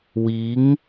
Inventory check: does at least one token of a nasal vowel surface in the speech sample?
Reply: no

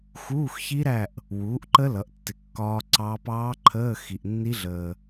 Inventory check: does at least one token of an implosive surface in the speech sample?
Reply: no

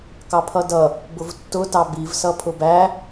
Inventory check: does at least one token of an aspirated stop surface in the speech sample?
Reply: yes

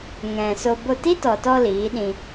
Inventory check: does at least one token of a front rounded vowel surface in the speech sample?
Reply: no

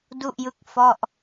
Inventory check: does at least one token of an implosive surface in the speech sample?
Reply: no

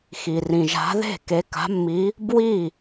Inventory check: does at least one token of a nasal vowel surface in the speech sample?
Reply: yes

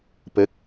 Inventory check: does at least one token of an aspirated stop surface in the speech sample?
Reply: no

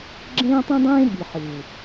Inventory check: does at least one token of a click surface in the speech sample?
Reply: yes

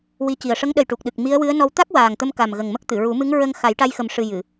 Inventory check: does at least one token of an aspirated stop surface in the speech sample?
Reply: no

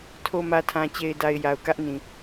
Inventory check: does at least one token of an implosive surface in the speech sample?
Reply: no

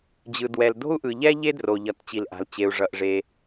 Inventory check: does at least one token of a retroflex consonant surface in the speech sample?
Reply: yes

